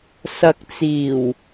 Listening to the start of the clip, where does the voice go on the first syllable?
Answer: low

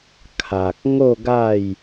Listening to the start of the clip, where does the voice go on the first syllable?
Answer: low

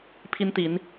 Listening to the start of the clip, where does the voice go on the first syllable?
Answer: high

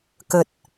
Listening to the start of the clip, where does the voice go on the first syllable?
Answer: low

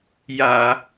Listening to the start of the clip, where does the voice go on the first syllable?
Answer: low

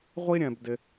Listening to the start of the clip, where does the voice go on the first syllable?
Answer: high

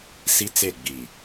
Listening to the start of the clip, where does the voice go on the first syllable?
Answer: high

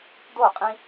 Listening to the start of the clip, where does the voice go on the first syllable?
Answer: falling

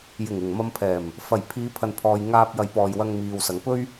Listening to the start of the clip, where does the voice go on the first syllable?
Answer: low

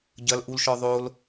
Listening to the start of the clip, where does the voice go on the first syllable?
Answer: high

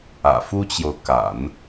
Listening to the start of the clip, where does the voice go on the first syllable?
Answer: low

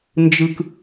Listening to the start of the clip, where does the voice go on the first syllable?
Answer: low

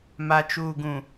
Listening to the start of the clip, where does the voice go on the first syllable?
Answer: low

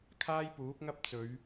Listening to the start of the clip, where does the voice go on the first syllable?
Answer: high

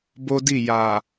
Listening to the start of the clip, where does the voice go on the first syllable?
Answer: high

